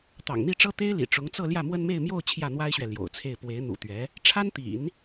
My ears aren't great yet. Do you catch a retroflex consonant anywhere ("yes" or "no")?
yes